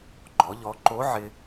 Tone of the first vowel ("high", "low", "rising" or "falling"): rising